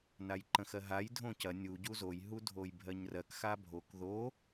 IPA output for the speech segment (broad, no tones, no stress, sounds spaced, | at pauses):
n a j ǃ ə̃ x ɜ ɦ a j dʱ õ c ɐ nʲ u ɟ u z o j ɦ u dʱ o j bʱ ɜ ɲ r ɜ k x a bʱ o k ð o